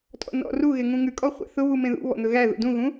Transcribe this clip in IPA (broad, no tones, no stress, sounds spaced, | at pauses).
tʼ ɔ̰ n ɔ̰ r u ɣ e ŋ ũ ŋ ʉ kʼ ɔ χʷ æ̰ θ ʊ β u m ẽ ð ṵ β ɔ̰ n̪ ɵ ɣ æ ð ṵ d ũ ɣ ũ